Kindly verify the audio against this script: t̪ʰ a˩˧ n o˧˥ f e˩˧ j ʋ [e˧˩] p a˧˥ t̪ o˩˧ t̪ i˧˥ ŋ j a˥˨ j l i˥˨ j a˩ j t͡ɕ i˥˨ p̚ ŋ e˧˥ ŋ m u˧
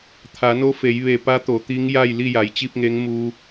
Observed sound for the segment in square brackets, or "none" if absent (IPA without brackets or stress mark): e˧˩